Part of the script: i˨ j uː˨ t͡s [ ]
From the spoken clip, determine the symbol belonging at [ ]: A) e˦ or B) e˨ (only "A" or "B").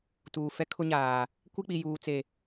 B